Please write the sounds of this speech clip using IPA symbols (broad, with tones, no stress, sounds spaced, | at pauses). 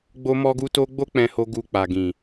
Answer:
ɡ͡b o˦ m ɔ˦ ɡ u˦ t o˦ ɡ͡b o˦ k͡p ɛ̃˧ h o˧ ɡ u˧ k͡p a˨ ɡ ĩ˨